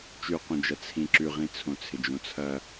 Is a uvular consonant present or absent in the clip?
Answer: present